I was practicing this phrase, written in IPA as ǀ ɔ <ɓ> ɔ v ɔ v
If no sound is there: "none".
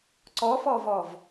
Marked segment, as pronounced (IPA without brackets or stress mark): f